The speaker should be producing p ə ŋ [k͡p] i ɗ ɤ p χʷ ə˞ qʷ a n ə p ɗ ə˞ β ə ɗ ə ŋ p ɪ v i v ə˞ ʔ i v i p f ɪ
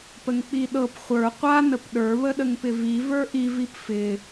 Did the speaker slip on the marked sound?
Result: no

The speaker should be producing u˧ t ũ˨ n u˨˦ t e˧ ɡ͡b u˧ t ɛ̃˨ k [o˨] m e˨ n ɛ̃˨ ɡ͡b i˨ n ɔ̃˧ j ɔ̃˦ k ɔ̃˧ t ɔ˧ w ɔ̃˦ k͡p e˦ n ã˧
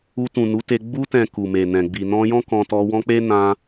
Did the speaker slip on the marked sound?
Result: yes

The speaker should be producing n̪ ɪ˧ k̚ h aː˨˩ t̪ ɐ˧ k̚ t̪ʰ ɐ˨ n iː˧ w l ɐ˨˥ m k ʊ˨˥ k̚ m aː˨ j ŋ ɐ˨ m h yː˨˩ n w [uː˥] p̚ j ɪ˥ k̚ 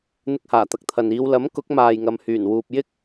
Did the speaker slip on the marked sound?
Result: yes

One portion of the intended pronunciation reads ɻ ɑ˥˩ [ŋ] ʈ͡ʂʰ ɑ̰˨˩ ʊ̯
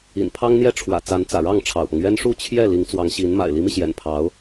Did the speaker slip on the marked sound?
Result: no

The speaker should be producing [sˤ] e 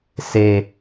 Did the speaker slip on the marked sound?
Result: yes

